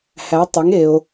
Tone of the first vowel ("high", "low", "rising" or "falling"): rising